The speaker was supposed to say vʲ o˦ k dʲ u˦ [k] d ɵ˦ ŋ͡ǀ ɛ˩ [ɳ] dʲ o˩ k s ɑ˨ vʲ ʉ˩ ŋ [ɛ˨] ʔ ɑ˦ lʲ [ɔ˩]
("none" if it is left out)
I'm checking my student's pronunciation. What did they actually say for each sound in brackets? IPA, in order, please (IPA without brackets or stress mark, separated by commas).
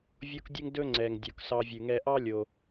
ŋ, ŋ, ɛ˨, o˩